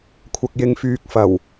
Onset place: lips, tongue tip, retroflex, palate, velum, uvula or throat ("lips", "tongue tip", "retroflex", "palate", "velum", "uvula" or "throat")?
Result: velum